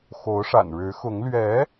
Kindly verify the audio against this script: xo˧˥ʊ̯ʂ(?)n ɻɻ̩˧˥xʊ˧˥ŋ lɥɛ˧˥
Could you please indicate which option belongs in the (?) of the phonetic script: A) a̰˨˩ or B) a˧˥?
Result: A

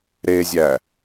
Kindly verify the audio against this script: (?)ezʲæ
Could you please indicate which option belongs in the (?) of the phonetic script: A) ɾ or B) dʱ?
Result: A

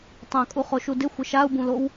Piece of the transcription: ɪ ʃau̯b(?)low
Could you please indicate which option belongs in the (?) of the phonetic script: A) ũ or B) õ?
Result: A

